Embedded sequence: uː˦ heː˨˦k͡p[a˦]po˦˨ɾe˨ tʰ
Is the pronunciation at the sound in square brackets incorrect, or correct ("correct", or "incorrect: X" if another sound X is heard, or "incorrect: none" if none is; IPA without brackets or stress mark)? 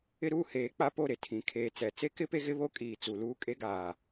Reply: correct